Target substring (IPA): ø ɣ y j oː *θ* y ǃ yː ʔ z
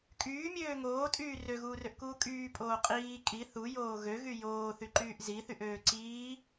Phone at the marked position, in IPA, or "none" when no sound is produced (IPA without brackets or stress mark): θ